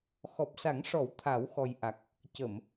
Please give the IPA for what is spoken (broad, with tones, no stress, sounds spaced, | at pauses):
x ɔ˨˩ p̚ s a˨˩˦ ŋ ʂ ɔ˨˩˦ w t̪ʰ a˨˩˦ w x ɔ˨˩ j ʔ a˨˩ k̚ | c ə˨˩˨ m